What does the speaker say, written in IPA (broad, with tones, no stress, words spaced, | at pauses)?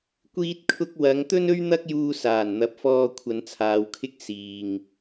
kʷiː˧t̚kʰʊ˧k̚wɐ˨˧ŋ t̪ɵ˥nɵ˥ɥ n̪ɐ˥k̚juː˧saː˨˩n n̪ɐ˨˥p̚fɔː˧ kʷʰɐ˨˧nt͡sʰaː˨˧wkʰɪ˥k̚ siː˨ŋ